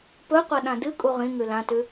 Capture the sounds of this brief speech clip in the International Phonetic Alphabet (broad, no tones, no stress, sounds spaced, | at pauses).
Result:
p ɵ qʷ ɐ ɗ ã d ɨ kʼ u ʁ ĩ ŋ ʉ l ã t ʉ